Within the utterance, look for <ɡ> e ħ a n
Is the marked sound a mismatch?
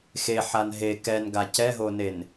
yes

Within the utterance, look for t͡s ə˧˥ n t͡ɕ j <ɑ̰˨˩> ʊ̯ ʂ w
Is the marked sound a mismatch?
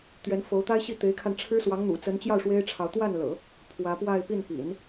yes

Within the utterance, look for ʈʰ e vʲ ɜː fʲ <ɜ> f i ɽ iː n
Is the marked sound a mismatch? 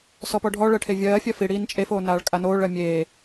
no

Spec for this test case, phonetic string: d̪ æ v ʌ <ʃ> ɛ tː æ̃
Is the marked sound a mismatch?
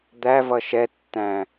no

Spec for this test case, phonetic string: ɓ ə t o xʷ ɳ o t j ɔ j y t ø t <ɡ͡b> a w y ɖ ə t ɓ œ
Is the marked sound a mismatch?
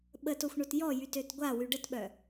yes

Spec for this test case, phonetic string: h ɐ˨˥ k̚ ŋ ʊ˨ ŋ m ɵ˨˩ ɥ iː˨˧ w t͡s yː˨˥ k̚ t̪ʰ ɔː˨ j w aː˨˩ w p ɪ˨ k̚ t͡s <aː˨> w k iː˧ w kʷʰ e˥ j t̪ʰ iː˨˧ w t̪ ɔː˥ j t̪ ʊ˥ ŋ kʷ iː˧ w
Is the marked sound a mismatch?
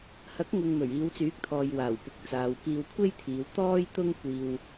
no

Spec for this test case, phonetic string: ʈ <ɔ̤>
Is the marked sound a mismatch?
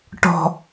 no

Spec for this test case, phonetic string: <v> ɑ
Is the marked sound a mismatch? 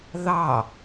yes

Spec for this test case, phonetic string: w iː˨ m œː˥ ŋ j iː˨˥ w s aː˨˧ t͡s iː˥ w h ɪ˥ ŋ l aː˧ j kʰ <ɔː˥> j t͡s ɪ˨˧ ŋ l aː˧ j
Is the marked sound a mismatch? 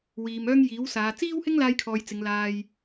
yes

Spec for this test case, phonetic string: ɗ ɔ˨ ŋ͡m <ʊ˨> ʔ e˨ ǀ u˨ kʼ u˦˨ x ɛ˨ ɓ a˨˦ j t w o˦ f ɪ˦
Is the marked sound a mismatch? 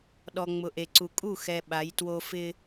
no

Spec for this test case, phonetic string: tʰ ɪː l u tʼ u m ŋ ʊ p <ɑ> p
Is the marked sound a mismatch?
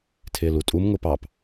no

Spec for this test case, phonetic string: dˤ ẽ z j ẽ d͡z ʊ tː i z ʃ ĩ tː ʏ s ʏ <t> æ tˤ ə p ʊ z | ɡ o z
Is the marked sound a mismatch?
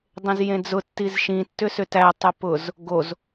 no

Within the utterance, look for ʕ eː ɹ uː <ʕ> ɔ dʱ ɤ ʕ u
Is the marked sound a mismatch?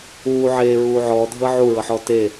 no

